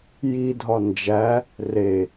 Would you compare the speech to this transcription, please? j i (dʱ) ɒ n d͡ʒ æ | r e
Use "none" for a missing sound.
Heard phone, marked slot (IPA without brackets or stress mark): dʱ